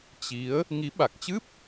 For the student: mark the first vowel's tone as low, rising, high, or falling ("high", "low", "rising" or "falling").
rising